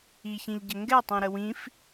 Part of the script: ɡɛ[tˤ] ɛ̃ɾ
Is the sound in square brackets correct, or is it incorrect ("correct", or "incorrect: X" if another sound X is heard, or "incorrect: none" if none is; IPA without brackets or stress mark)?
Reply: correct